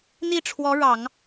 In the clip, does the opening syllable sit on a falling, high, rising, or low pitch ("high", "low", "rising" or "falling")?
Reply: falling